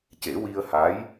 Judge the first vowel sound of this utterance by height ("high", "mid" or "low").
mid